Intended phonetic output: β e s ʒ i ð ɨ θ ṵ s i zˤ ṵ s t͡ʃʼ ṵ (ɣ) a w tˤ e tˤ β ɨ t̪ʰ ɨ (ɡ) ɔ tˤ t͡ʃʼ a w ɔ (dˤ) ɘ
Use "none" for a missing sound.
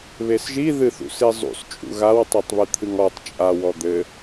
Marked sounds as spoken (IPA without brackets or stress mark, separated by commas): ɣ, ŋ, d̪